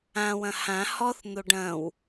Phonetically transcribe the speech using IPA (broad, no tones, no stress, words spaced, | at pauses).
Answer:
ãwɐ̃ hã hɔθ n̪oɖɐ̃w